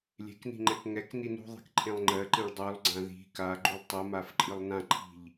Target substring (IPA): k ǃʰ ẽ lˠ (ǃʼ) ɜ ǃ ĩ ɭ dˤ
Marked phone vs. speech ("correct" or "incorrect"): incorrect